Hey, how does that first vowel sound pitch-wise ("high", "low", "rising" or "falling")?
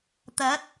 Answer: rising